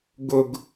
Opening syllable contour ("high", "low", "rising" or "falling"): low